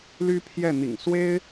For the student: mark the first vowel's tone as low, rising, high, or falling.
high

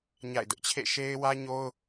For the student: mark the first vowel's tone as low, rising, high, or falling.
falling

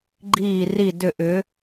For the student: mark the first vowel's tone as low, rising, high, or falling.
falling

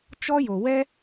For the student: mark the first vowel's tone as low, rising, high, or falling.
high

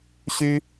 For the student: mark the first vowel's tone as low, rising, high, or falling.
high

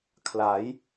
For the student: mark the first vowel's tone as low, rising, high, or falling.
rising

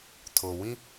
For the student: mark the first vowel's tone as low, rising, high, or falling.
low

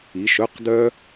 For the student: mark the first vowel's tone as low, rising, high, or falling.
rising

